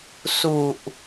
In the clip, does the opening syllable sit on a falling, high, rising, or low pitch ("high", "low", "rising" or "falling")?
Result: low